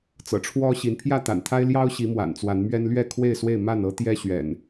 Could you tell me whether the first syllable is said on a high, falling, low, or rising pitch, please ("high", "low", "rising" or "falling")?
low